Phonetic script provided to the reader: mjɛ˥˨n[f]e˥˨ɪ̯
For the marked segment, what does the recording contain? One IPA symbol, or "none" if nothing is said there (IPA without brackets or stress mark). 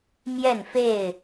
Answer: f